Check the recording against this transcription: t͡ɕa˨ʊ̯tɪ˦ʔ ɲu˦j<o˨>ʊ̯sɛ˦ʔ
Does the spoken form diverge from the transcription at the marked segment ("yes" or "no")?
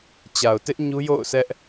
yes